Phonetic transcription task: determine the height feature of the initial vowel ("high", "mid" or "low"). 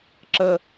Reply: mid